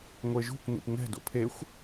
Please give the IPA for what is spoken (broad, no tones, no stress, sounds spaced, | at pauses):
ŋʷ e ʒ ṳ kʷ n ḭ p ŋ ɛ̤ d o̰ pʰ e xʷ